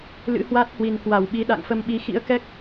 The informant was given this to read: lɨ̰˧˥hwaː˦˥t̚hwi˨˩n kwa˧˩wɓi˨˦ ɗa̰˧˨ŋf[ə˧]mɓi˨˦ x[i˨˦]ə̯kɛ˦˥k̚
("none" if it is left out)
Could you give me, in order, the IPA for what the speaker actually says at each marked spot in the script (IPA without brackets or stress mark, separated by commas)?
ə˧, ḭ˧˥